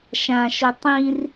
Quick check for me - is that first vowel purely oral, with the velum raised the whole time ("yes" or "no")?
no